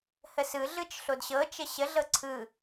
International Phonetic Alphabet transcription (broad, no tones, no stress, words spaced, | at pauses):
həsɯ ɮɯt͡ʃɬodɕɤ t͡ʃəɕə ɮɤǀʰɯ